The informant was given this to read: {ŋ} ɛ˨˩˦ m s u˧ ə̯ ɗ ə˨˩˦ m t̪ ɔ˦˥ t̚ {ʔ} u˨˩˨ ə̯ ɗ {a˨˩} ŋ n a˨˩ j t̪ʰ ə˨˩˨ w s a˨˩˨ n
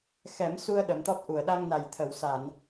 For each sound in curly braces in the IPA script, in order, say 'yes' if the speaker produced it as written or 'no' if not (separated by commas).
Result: no, yes, no